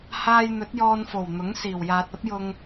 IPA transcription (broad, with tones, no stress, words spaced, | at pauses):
haː˧jn̪ɵ˨˥t̚ jɔː˧nfo˨˩w n̪ʊ˨˥ŋsiː˨˩w jaː˨t̚ɐ˥p̚jʊ˧ŋ